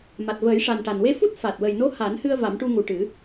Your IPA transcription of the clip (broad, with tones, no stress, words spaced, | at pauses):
ma˨˩t̚ vəː˨˩˦jʂa˨˩nʈa˨˩n we˧fu˦˥t̚ fa˨˩t̚wə˨˩jno˧˥ ha˨˩˦nhɨ˧ə̯ va˨˩˦mʈu˧ŋu˨˩ʈɨ˨˩˦